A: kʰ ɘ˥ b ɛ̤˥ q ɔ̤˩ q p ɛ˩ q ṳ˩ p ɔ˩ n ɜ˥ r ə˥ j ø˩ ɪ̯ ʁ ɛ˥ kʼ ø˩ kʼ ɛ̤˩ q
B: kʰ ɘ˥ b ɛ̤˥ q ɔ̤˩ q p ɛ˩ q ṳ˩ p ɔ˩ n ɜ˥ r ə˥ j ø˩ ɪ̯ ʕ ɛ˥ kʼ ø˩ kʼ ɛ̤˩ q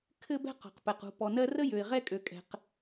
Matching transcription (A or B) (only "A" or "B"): A